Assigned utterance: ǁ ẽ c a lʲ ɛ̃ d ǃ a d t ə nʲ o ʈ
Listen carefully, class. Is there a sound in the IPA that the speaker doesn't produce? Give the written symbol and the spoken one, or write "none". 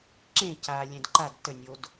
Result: ʈ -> d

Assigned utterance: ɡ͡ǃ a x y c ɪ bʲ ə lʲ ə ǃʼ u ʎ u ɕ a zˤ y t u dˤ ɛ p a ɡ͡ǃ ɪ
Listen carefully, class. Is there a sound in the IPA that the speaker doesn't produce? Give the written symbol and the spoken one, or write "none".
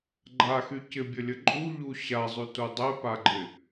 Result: none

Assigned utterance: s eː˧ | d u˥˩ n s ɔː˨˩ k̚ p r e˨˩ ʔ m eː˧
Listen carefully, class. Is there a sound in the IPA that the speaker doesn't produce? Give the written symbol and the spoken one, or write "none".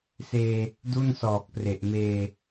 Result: none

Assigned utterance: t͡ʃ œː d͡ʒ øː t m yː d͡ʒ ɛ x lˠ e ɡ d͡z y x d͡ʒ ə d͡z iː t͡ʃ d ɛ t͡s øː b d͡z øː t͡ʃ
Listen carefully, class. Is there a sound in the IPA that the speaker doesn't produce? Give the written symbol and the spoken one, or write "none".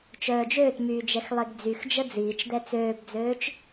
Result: none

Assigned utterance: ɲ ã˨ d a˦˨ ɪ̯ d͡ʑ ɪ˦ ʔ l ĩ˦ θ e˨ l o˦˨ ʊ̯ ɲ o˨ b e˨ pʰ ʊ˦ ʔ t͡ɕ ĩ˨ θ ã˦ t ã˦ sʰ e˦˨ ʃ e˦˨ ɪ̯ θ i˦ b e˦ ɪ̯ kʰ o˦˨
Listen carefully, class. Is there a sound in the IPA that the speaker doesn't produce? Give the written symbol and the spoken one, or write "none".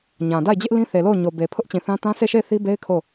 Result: none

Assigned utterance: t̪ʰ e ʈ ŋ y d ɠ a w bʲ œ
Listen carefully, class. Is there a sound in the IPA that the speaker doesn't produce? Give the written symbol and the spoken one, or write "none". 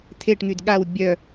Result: none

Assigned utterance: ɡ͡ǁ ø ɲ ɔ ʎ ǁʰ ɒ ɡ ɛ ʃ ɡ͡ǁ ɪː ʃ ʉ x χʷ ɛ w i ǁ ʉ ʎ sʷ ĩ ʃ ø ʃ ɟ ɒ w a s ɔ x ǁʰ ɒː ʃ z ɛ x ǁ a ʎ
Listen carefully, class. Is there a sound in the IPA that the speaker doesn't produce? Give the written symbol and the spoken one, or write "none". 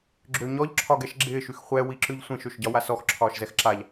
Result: none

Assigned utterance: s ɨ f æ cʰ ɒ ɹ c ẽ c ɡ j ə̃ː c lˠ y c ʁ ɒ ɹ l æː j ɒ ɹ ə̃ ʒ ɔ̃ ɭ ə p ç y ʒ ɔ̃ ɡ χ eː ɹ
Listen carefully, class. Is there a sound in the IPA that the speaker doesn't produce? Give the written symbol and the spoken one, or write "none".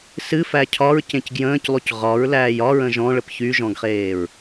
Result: none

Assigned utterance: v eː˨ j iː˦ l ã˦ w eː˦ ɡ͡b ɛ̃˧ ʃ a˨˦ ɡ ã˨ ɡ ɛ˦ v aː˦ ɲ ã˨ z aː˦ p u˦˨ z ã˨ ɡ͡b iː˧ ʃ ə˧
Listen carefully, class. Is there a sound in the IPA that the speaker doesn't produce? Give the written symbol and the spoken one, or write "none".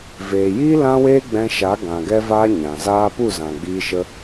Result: none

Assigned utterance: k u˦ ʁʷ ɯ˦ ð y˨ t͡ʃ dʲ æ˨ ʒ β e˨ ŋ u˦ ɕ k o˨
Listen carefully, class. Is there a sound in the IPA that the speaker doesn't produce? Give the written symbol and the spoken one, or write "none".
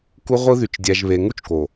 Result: ɕ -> t͡ʃ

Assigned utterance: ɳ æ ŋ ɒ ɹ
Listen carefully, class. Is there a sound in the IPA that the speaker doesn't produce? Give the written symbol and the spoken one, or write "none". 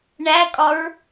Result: ŋ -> kʼ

